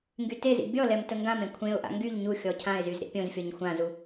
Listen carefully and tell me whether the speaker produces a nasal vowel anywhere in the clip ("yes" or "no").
yes